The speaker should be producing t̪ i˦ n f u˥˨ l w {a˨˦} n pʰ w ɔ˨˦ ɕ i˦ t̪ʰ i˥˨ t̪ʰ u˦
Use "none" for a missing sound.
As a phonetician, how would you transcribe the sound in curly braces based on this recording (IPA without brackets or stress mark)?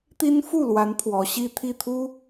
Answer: a˨˦